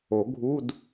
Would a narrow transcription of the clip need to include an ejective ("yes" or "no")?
no